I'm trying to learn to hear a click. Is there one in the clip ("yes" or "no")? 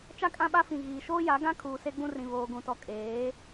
no